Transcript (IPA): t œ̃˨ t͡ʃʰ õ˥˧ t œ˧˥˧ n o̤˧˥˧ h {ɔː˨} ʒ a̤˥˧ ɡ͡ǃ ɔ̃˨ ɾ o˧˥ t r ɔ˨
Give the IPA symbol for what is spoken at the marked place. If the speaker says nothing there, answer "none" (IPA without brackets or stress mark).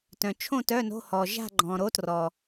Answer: ɔː˨